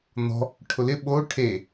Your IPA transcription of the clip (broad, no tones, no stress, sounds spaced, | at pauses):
n̪ ɔ̤ | ʈʰ ʊ l ɪ ɓ o ʈʰ e